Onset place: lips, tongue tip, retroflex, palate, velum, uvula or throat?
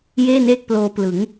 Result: palate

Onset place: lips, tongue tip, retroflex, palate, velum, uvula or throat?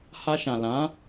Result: throat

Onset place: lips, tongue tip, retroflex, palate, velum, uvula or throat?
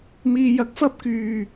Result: lips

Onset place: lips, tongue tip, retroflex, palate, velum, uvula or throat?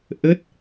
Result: throat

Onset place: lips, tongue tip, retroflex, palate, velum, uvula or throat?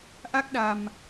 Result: throat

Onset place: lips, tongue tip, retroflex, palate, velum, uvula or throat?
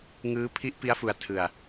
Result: velum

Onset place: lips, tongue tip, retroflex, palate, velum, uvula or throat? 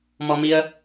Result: lips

